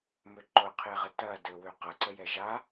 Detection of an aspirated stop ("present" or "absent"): present